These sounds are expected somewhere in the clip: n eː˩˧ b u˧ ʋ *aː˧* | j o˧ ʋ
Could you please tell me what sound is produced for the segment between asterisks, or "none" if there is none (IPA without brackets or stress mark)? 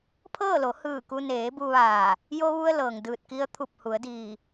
aː˧˩